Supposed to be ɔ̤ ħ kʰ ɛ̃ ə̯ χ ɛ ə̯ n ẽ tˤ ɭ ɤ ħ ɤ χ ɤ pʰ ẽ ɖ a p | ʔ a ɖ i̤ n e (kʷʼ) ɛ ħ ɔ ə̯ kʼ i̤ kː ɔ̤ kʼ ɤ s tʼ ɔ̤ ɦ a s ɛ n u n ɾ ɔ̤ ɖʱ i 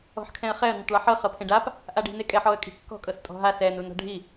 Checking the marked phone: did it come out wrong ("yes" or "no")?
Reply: yes